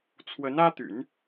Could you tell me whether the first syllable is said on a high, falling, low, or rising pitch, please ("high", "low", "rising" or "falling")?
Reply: rising